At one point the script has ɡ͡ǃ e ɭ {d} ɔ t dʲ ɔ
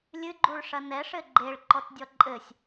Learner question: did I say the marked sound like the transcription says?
no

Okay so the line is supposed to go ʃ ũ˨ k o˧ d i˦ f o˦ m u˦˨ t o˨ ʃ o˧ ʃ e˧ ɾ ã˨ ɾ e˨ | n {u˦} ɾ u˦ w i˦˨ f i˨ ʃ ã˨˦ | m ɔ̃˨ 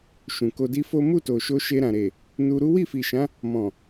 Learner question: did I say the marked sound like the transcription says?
no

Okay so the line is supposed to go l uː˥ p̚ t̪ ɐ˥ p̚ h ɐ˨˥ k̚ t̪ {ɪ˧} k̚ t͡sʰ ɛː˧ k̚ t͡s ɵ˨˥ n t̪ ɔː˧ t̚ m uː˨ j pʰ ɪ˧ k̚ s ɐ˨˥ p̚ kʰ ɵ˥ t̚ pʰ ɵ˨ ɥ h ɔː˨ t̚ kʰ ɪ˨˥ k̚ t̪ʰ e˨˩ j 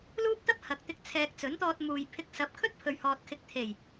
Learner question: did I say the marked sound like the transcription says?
yes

